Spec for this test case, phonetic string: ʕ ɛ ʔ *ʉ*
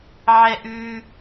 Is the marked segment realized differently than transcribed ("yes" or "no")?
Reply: no